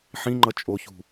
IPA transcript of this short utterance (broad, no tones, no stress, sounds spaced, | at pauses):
ħ ĩ ŋ͡ǃ ʌ t͡ʃʼ o ç ṳ